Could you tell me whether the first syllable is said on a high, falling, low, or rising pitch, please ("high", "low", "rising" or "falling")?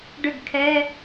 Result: falling